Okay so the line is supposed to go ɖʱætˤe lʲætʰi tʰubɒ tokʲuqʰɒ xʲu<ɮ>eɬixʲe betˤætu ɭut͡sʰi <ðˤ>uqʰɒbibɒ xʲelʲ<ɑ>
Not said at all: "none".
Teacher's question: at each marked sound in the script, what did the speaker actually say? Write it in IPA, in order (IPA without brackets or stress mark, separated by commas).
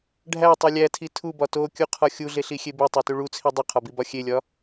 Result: ɮ, dˤ, ɒ